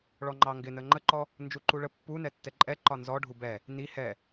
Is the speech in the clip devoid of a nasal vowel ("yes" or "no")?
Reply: yes